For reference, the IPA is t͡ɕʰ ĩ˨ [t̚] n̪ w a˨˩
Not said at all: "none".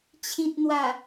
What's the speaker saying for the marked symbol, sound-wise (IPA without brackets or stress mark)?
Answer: t̚